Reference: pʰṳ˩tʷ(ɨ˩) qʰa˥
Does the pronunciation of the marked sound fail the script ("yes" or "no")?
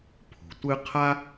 yes